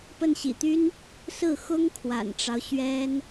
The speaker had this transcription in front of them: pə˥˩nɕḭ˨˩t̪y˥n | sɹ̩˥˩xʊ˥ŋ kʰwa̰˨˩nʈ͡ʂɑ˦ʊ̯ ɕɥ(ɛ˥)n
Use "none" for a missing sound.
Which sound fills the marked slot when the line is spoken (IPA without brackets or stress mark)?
ɛ˥